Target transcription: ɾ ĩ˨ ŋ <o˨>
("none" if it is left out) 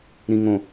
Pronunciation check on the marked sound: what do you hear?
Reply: õ˨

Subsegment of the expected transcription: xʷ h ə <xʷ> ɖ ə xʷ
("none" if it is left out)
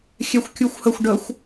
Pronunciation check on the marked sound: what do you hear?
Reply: xʷ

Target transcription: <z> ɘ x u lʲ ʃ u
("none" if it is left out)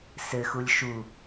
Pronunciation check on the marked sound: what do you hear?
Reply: s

